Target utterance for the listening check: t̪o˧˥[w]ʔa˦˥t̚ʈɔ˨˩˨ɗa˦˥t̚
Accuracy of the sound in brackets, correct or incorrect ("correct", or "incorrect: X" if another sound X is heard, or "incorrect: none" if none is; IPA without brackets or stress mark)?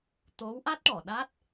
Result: correct